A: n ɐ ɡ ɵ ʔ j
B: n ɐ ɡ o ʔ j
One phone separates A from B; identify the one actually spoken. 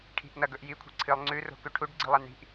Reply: A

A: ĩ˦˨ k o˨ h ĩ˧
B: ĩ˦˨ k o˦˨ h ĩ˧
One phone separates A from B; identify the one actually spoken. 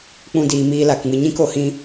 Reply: A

